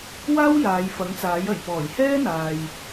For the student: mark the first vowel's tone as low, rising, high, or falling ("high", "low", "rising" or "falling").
high